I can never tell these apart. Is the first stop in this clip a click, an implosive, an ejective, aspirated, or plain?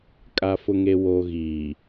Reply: ejective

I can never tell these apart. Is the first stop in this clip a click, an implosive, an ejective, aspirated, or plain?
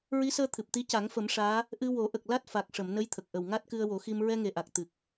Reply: aspirated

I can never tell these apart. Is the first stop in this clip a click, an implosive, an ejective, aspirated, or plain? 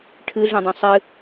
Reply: aspirated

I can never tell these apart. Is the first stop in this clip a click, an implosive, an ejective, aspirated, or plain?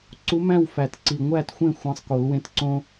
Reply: click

